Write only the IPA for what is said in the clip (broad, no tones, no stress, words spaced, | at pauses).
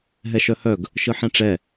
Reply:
ɦɛʃœhœɡ | ʃɯħɛ̃ʈ͡ʂɛ